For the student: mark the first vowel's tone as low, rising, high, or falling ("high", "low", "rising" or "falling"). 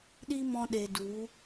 high